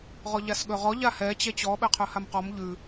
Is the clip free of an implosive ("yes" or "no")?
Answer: no